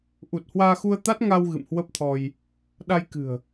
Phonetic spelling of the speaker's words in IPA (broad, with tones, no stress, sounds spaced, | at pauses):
ʔ u˨˩ t̚ h w aː˧ x u˧ ə̯ t̪ a˦˥ t̚ ŋ a˧ w ɣ ɨ̰˧˨ m h w ə˦˥ p̚ t̪ʰ ɔ˧ j | ɗ a˧ j k ɨ̤˨˩ ə̯